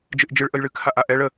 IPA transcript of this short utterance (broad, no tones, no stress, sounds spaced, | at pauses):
d͡ʒ ɨ ʔ d͡ʒ ɨ ɭ ʔ ə j ɭ ɨ kʰ a ʔ a ʔ ɛ ɭ ə